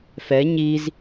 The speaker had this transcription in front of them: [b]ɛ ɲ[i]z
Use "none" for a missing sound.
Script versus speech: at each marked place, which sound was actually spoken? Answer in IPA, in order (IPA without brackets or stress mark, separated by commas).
f, i